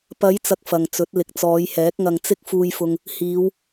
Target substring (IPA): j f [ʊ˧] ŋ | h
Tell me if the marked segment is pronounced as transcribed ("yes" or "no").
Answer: yes